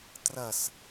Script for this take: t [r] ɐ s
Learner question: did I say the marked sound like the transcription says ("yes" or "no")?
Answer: yes